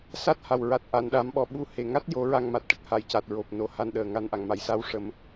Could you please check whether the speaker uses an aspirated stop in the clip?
no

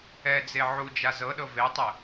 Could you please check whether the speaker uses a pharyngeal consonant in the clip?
yes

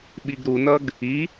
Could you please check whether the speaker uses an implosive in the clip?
yes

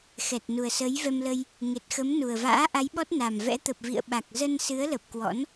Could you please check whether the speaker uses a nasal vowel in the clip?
no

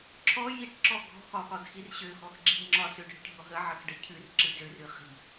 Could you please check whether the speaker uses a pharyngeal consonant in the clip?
yes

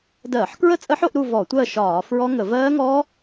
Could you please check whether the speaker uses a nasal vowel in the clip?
no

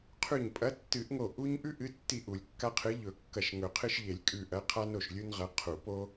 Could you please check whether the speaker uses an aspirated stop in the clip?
yes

